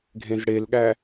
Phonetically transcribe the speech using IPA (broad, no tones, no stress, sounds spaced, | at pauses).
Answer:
ɡʱ ẽ z ɽ e l ɠ æ